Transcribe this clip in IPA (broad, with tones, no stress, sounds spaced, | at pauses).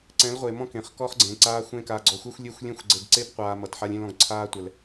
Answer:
ǀ ɛ̃˨˦ l ʁʷ e˨ m ɔ̃˦ k ẽ˨ χ k ɔ˦ χ ɡ͡ǀ ẽː˨ ǀ aː˦ xʷ ẽ˦ k a˨ ɡ͡ǀ ɔ˨ xʷ ɛ˦ xʷ lʲ e˦˨ xʷ lʲ ẽ˦ xʷ ɡ͡ǀ e˨ ɡ ǀ e˦ p qʷ aː˨ m ʌ˨ t ħ a˦ lʲ ẽ˦ l ɔ̃˨ ɡ ǀʰ aː˦ tʷ ɛ˨ l